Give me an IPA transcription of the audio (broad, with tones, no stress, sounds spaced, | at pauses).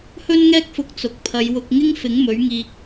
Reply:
h ɵ˥ n ŋ ɛː˥ k̚ f ʊ˧ k̚ t͡s ʊ˨ k̚ pʰ ɐ˨˧ j w ʊ˧ k̚ ŋ ɪ˥ ŋ f ɪ˨˥ ŋ m ɵ˨˥ ɥ ŋ iː˧ k̚